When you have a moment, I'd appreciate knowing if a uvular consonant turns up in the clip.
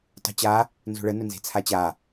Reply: no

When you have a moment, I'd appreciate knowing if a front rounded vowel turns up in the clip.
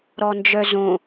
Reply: yes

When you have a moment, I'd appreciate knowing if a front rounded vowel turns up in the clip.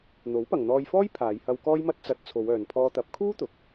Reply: yes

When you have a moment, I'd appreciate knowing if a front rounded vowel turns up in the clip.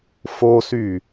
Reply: yes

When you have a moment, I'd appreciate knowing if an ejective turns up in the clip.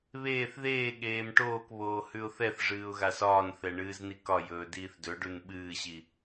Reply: no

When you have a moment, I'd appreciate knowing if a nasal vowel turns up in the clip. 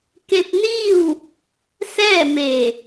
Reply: no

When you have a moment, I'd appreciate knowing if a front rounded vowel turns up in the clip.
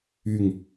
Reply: yes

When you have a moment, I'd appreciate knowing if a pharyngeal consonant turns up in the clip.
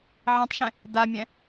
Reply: yes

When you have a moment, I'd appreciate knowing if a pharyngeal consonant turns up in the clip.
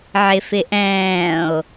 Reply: yes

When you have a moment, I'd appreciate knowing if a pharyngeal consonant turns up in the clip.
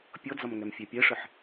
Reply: yes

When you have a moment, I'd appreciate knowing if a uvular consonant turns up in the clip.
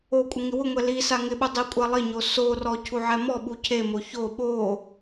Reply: no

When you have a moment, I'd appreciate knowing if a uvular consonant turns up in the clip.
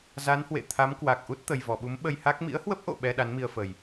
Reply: no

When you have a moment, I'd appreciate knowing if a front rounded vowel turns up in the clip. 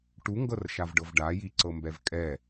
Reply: no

